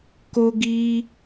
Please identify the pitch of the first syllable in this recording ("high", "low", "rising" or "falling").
high